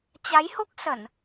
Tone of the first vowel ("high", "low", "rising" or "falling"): rising